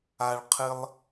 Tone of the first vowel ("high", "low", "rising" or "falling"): low